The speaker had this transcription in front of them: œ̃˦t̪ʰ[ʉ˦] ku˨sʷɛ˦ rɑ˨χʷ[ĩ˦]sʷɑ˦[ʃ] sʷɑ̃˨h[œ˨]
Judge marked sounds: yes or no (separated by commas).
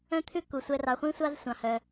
yes, yes, no, yes